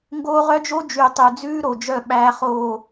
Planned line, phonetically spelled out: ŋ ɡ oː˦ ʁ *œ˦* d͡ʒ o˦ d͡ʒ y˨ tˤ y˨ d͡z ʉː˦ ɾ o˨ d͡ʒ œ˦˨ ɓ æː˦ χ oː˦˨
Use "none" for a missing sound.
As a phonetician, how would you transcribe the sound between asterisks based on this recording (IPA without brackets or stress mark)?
œ˦